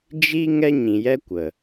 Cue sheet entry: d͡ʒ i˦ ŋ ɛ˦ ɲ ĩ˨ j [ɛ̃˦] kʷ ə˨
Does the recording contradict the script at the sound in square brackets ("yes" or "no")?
yes